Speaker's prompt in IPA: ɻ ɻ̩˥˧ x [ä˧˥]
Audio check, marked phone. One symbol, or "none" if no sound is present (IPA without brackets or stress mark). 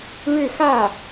ä˥˩